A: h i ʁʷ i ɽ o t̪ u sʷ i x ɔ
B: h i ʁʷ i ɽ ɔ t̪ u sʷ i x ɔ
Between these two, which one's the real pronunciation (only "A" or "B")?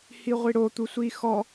A